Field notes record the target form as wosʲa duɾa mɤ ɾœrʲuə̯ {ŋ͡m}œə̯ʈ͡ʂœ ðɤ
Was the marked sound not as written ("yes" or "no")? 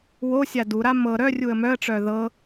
yes